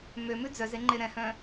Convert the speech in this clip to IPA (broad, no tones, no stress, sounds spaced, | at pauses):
m ø m ʉ d͡z œ z e ŋ͡ǃ e ɾ ɛ̃ h œ̃